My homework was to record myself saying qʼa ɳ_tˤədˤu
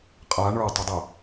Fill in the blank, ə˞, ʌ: ə˞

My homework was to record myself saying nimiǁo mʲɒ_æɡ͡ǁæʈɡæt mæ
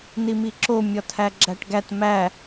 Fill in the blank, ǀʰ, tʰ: tʰ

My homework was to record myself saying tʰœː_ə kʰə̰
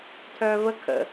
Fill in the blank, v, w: v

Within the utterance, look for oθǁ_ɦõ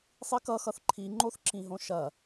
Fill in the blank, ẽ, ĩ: ĩ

